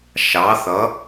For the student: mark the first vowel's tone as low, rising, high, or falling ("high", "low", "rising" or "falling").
rising